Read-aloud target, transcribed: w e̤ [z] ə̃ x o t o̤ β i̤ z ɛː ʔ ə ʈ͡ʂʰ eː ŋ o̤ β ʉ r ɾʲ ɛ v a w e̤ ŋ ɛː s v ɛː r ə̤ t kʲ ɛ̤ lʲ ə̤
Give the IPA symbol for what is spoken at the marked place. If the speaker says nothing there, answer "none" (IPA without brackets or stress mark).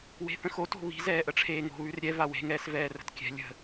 θ